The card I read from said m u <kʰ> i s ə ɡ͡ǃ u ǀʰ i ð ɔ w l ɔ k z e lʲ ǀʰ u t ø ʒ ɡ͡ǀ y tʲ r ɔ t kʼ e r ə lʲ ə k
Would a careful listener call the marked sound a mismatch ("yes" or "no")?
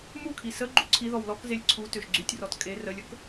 no